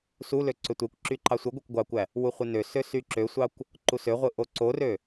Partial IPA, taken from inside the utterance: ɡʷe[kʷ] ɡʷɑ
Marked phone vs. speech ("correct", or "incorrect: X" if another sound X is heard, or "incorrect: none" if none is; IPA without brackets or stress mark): correct